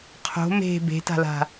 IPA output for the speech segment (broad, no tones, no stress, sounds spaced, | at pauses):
qʰ o̤ m e̤ b e̤ t a̤ l a̤